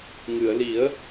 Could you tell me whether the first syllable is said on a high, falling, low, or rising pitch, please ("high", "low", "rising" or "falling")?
low